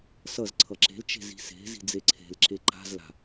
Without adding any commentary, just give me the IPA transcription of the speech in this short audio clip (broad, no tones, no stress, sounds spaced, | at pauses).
s ʌ z ǀʰ ʌ ǁ e̤ l t͡ʃ e̤ z i̤ s e̤ z i̤ d͡z e ǀʰ e̤ l ǁ e ǃ a̤ z l a̤